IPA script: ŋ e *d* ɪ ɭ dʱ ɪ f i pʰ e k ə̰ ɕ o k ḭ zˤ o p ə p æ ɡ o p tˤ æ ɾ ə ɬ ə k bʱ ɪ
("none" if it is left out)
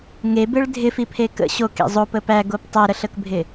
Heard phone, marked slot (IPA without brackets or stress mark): b